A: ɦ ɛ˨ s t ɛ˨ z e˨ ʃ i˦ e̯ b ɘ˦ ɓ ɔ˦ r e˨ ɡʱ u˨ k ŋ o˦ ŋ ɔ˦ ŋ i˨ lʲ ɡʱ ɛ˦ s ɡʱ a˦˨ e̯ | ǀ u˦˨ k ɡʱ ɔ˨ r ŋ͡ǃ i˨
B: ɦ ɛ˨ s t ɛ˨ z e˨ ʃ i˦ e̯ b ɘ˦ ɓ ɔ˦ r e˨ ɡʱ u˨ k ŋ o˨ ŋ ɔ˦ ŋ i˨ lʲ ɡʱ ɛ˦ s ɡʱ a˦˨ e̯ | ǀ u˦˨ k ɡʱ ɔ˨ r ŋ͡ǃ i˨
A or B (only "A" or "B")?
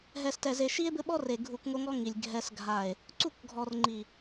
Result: A